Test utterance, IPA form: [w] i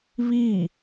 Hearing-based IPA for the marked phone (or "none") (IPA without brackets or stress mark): β